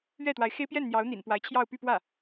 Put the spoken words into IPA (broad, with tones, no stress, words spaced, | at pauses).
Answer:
ɥɛ˥˩t̪wa˧˥ɪ̯xe˥ɪ̯ pjɛ˥˩nn̪jɑ˧˥ʊ̯n̪ḭ˨˩n pwa˧˥ɪ̯t͡ɕʰjɑ˥˧ʊ̯py˥˧pwä˥˩